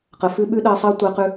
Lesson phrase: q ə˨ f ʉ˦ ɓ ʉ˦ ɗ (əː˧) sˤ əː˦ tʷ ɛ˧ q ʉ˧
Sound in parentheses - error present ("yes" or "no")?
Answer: no